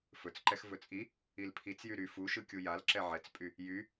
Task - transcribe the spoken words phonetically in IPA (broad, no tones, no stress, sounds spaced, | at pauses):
f ɵ t͡s ǃ ɛ x v ɵ t͡sʼ i | i l pʰ i t͡s j y ɾ y f u ʃ ɯ kʲ u j a l ǁ ɛ ʕ ɛ t͡s pʼ y | j y